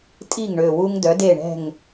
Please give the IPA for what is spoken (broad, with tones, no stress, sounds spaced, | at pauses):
tʼ i˥˩ ŋ ɳ ø˨˩ w u˦ ŋ d œ˩˥ d e˥˩ ɳ ɛ̤˥˩ ŋ